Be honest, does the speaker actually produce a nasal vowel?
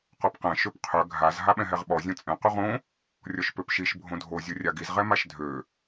yes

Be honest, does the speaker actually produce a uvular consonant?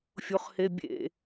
yes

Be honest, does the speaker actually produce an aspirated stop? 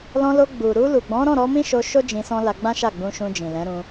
no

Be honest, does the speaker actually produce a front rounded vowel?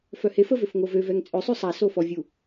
yes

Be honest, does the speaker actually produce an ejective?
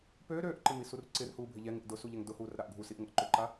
no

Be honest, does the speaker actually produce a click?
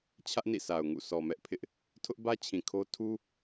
no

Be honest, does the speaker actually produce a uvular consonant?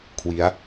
no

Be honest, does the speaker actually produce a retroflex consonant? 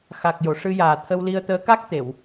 yes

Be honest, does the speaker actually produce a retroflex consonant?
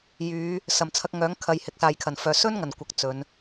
no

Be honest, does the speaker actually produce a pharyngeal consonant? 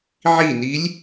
yes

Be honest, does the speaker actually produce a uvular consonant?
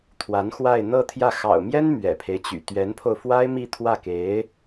no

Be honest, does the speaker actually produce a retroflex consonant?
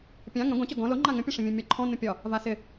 yes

